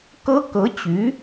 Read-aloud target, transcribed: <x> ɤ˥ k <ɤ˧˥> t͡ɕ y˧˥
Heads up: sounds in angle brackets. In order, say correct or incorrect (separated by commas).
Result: incorrect, correct